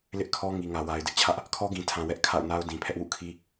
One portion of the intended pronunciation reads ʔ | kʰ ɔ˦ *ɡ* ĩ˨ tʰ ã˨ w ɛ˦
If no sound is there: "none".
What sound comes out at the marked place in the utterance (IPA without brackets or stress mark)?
ɡ